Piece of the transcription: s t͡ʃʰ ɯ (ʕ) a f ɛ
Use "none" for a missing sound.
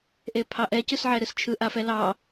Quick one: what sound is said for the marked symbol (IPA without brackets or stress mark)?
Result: ʔ